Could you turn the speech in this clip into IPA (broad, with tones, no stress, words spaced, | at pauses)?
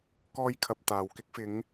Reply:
kɔː˧jkʰɐ˨p̚ t̪aː˨wkɪ˥k̚ fɪ˨˧ŋ